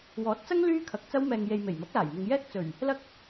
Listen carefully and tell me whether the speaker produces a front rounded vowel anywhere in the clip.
yes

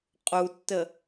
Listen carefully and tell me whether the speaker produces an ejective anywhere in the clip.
yes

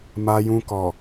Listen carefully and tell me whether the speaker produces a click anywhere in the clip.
no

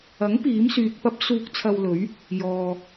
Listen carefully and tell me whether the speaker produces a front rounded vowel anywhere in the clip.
yes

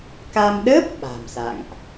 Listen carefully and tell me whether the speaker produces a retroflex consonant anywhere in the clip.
no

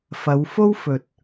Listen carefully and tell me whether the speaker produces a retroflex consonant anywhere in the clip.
no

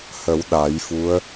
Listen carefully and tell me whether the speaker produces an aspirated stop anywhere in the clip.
no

